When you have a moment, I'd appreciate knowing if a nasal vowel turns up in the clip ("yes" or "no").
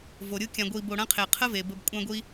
yes